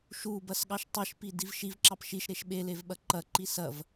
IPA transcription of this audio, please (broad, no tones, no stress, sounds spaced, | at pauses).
ʃ u b ɐ s ɠ ɑ ʃ tˤ e ʃ p i d i v ʃ i v ǁ ɑ p ʃ i ʃ ɾ e ʃ ɓ e l e v ɓ ɐ ǃ ɐ ǃ i s ɐ v